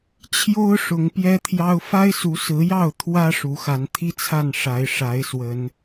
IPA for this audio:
t͡ɕʰ j o˦ ʊ̯ ʂ ʊ˨˦ ŋ p j ɛ˦ t̪ʰ j ɑ˦ ʊ̯ f a˦ ɪ̯ s u˨˦ s ɹ̩˨˦ j ɑ˥˨ ʊ̯ t̪ʰ w ä˦ ʂ u˨˦ x a˨˦ n t̪ʰ i˦ t͡sʰ a˥˨ n ʂ a˨˦ ɪ̯ ʂ a˨˦ ɪ̯ s w ə˨˦ n

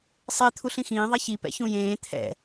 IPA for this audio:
sˤ e t̪ʰ u ɬ ĩ x ĩː ðˤ ɛ ç i p ɛ̰ ç ũ j ẽː t̪ʰ ɛ̰

